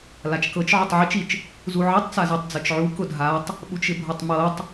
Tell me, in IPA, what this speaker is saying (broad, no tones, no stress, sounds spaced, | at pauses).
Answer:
l a t͡ʃ k ɤ t͡ʃ ʕ ʊ tˤ ʕ i t͡ʃ i t͡ʃ | z u ʕ i tˤ t͡s a z ɤ tˤ d͡z ɤ t͡ʃ ʕ u k ʊ dʱ a tˤ | ɓ u t͡ʃ ɪ bʱ ɤ tˤ m ɤ tˤ